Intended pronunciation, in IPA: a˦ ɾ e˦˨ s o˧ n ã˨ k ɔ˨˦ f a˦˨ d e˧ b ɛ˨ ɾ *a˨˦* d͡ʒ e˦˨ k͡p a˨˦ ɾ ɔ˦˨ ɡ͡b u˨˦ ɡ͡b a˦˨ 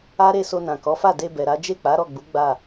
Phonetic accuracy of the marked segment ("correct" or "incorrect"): correct